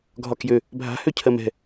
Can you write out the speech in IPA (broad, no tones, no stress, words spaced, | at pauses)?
ɡʱɒkjø | bʱa̤hø cʰɜmɛ̤